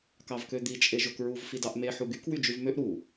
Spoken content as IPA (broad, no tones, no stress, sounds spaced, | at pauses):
k ɑ v k ø d̪ i t͡ʃʼ e ʒ o k ɹ u v f i d ɑ ʔ m e ħ u ɡ y k w y d͡ʒ y v m ø ʔ ɾ u